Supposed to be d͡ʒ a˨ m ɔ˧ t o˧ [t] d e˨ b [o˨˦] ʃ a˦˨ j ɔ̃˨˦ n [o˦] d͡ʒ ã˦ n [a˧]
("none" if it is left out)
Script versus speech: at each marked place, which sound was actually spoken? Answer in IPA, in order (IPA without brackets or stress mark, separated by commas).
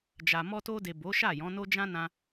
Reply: none, o˨˦, o˦, ã˧